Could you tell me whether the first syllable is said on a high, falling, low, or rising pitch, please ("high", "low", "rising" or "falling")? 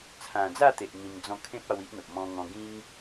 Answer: low